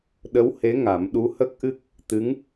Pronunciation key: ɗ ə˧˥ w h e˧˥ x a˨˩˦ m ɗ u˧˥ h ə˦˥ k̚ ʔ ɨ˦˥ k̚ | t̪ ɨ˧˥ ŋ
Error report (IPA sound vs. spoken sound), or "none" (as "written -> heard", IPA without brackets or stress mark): x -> ŋ